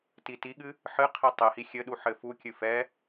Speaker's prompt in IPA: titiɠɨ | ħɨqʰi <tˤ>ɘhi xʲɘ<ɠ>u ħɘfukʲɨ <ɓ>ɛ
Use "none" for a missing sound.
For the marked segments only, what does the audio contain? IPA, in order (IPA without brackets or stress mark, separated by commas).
tˤ, ɗ, f